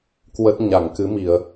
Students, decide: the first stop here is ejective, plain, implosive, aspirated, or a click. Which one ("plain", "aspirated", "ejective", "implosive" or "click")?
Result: plain